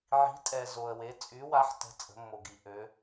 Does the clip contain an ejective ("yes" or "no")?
yes